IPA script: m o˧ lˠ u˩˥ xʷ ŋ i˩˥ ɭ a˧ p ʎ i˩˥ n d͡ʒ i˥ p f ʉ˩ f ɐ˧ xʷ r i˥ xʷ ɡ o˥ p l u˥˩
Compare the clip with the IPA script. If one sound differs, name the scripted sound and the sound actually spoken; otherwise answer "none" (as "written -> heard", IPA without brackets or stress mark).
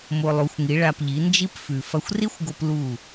none